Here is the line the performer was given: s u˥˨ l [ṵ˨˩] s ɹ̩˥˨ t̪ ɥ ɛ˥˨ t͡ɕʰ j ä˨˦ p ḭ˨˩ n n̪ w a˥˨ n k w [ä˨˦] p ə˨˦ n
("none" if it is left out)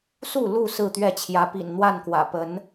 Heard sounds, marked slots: u˥˨, ä̰˨˩

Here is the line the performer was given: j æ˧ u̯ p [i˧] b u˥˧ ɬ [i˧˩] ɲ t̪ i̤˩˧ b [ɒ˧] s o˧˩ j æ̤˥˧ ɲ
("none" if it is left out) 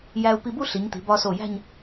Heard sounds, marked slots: i˧, i˩˧, ɒ˧

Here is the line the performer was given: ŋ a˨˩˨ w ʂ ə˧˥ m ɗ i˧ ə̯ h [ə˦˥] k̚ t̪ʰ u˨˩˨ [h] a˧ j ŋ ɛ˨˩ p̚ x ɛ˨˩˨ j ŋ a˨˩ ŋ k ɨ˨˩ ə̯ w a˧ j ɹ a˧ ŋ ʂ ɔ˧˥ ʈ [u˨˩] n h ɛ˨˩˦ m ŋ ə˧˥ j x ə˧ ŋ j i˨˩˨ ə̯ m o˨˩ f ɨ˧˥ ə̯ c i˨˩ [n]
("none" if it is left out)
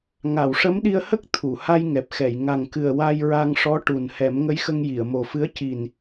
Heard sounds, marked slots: ə˦˥, h, u˨˩, n

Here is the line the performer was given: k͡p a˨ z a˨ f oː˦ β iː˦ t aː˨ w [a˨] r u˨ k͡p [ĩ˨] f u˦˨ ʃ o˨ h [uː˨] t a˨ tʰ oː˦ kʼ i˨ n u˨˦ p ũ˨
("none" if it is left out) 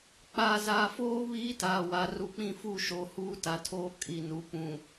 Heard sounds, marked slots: a˨, ĩ˦˨, uː˦

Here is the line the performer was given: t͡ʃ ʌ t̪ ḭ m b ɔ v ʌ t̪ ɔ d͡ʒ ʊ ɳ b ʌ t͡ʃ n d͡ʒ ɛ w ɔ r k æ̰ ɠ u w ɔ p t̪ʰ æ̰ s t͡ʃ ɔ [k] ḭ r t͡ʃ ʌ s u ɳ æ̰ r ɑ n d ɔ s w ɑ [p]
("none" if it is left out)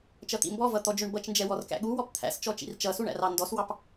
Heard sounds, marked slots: t͡ʃ, p

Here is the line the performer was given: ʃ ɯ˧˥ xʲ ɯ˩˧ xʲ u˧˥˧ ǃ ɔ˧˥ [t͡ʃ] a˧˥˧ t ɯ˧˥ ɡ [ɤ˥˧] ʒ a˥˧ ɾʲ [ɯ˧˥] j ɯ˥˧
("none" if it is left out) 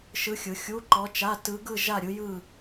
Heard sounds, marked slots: t͡ʃ, ɯ˥˧, ɯ˧˥

